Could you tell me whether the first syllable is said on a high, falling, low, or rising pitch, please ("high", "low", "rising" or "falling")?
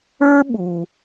high